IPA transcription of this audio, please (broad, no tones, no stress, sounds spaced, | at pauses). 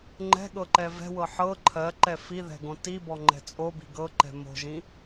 ŋ͡ǃ ɛ̤ ɠ ɤ ǃ ɛ v ɛ̤ w ɤ ħ ɤ ǃʰ ɜ ǃ ɛ f i ð ɛ̤ ɡ õ t i b ɔ ŋ͡ǃ ɛ̤ t͡sʼ o b i̤ ɡ ɤ ǃ ɛ̤ m o̤ ʒ ĩ